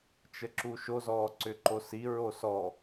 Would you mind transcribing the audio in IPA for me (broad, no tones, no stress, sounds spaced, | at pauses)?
t͡ʃ ə ǁ u ʃ o z ɔː ǀ ʏ ǃ o s i ɹ o s ɔ